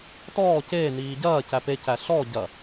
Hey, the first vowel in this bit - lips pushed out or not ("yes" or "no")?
yes